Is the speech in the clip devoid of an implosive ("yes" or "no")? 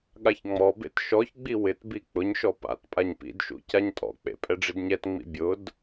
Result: no